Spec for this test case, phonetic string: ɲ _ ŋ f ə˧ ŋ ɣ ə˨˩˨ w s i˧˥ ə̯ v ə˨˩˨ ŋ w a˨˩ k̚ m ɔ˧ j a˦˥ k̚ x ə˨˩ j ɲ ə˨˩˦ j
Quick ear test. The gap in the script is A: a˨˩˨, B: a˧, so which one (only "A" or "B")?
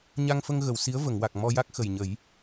B